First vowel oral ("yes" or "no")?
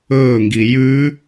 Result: yes